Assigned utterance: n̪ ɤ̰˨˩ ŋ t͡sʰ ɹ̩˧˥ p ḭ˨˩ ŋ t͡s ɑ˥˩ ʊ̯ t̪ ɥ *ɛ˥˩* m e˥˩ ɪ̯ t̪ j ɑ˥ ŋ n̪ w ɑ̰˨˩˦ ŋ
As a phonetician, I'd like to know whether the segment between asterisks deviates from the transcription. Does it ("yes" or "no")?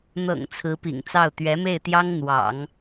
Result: yes